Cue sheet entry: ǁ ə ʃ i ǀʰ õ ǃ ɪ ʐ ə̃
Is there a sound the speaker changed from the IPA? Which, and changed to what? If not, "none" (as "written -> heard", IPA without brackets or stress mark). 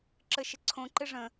i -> ɪ